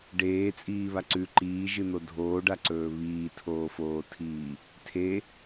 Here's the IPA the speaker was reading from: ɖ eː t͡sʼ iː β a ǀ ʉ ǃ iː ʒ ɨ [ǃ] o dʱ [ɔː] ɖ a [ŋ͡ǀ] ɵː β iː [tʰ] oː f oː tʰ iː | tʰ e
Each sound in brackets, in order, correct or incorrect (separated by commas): incorrect, incorrect, incorrect, correct